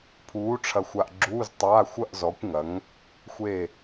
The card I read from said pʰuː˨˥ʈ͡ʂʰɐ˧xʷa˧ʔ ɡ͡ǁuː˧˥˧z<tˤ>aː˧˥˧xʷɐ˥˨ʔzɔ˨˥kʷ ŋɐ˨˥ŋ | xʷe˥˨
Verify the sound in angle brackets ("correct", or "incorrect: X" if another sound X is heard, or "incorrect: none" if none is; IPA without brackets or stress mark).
correct